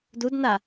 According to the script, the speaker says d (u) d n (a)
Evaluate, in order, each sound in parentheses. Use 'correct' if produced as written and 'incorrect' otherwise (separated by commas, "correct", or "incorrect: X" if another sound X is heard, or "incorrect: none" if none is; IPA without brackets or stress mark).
correct, correct